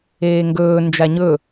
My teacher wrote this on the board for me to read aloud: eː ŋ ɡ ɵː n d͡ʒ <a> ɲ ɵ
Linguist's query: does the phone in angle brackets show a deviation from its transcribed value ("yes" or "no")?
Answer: no